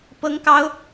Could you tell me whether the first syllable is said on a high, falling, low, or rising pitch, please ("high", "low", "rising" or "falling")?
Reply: high